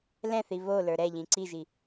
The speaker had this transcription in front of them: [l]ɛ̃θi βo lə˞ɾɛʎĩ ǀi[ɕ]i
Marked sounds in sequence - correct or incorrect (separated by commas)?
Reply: correct, incorrect